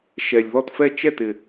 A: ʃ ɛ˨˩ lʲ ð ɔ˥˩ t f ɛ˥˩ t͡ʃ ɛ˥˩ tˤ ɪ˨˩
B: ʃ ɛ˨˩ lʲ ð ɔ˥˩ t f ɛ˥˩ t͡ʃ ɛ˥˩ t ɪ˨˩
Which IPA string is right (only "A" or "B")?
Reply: B